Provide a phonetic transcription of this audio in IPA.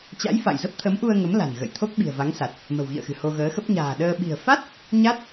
t͡ɕ a̰˧˥ j f a̰˧˨ j z ə˦˥ p̚ t̪ʰ ə˨˦ m ʔ u˧ ə̯ ŋ ə˨˦ m l a̤˨˩ n ɣ ə̰˧˨ j t̪ʰ o˦˥ k̚ ɓ i̤˨˩ ə̯ v a˨˦ ŋ s a˨˩ t̚ | m ə̤˨˩ w ɣ ḭ˧˨ ə̯ x ɨ̤˨˩ h o˧ ɣ əː˨˦ x ə˦˥ p̚ ɲ a̤ː˨˩ ɗ əː˧ ɓ i̤˨˩ ə̯ f a˦˥ t̚ | ɲ a˦˥ t̚

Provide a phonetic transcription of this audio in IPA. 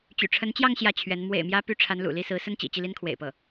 t͡ɕ y̰˨˩ ʈ͡ʂʰ ə˧˥ n t͡ɕ j ɑ˥˧ ŋ ɕ j ä˥˩ t͡ɕʰ ɥ ɛ˧˥ n m w ḛ˨˩ ɪ̯ m j ä˧˥ p y˧˥ ʈ͡ʂʰ a˧˥ n l ṵ˨˩ l i˥˩ s ɹ̩˧˥ s ə˥ n t͡ɕ ḭ˨˩ t͡ɕ i˥˩ l i˥ n kʰ w ḛ˨˩ ɪ̯ p ɤ˥˩

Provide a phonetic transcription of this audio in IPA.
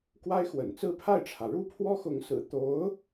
k w a˥ ɪ̯ x w ə̰˨˩ n t͡s ɹ̩˥˧ pʰ a˥˩ ɪ̯ ʈ͡ʂʰ ä˩ ɻ u˥ pʰ w ɔ˥ x ʊ˧˥ ŋ s ɹ̩˨˩ t̪ o˧˥ ʊ̯

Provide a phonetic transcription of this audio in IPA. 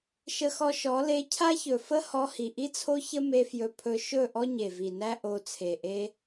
ʃ ə˧ x ɔ˧ ʃ ɔ˨˦ l e˧ cʰ a˦ ç ɵ˨ f ə˦ h ɔ˧ h i˨ ʔ i˦ t͡sʰ o˦ ç ə˦ m e˧ f j ɵ˧ pʰ ɵ˧ ʃ ɵ˦˨ ʔ ɔ˦ ɲ e˨ v i˨ n æ˦ ʔ o˧ t͡sʰ e˨ ʔ e˧

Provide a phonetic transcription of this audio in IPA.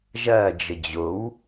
ʒ ɐː d͡ʒ ə d͡ʑ o w

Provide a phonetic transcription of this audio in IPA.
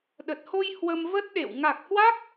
ɗ ə˨˩ t̚ h o˧ j h w ə˧ m v ə˦˥ t̚ ɗ ḛ˧˨ w ŋ a˨˩ k̚ h w a˦˥ k̚

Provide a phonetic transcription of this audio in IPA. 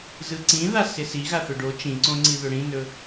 z ɯ ǀ ĩ ð a s ɪ s i ɣ a θ ɵ ɖ o t͡ʃ ĩ ǀ õ ŋ͡ǀ i ð ɵ ɽ ĩ n ɵ

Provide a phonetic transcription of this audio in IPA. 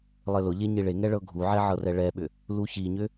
lˠ ɘ l ʊ ʎ e ɲ i ɭ e ŋ ɛ ɭ ɤ ɡʱ u ʕ ɛ ʕ ɤ r ɛ ɭ ɛ ɓ ʏ | l u ç i ɲ ʏ

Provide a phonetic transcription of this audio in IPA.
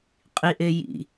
qʼ i ʔ e j ḭ

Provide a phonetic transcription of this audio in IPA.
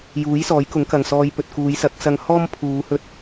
j uː˨˥ j s ɔː˨˥ j k ʊ˨˥ ŋ k ɐ˨ ŋ s ɔː˧ j p ɵ˨ t̚ k uː˨˧ j s ɐ˨˥ k̚ s ɐ˧ ŋ h ɔː˥ m pʰ uː˨˧ h ɵ˥ t̚

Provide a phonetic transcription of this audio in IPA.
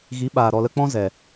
ɣ i˨˦ ɓ aː˨ ɾ ɔ˨ l ə˧ k͡p ɔ̃˦ z ɛ˨

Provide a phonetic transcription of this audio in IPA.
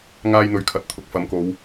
ŋ aː˥ j n̪ ɵ˧ ɥ kʰ ɐ˨˥ t̚ t̪ʰ ʊ˨˥ k̚ f ɐ˨˥ m k o˨˧ w

